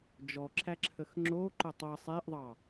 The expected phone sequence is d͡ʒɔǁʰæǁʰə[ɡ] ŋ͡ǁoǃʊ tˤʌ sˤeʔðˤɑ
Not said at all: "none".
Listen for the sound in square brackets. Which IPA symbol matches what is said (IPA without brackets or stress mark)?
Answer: x